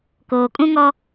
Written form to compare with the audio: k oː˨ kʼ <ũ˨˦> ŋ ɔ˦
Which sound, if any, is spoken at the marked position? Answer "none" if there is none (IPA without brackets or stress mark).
ũ˦